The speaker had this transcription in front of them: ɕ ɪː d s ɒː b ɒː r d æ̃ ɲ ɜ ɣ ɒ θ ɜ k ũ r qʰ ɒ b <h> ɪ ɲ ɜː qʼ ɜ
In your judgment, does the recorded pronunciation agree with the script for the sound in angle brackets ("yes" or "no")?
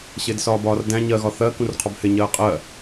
yes